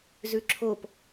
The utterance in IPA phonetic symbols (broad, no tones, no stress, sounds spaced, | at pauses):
z ʉ ǁʰ o p